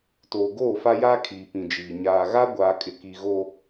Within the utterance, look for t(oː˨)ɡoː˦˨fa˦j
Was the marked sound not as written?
no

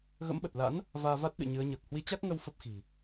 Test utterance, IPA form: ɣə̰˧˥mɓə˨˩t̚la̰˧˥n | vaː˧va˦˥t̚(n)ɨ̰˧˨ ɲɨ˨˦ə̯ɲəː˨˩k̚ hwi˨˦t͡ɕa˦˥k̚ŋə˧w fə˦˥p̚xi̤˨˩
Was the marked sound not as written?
yes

